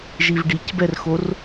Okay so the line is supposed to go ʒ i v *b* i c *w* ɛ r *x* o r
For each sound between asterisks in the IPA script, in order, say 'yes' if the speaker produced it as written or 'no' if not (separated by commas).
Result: no, no, yes